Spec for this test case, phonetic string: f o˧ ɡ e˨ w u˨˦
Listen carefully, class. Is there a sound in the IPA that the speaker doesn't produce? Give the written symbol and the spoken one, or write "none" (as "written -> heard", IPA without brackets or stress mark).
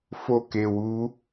ɡ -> k